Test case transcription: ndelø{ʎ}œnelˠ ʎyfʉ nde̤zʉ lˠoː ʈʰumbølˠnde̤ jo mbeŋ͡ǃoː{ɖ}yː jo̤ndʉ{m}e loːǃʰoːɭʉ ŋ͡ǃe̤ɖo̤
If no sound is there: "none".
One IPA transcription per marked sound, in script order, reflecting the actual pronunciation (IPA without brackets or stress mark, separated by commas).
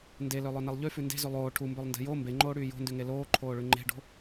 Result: lˠ, ɽ, ŋ